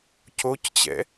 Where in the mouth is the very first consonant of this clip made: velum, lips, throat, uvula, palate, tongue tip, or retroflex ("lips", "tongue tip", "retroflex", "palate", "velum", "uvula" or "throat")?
palate